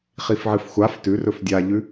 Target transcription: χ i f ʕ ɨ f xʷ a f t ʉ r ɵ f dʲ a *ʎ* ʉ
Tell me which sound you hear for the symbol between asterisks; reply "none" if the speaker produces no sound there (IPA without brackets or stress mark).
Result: ʎ